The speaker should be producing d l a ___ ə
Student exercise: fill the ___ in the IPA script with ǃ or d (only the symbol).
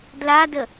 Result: d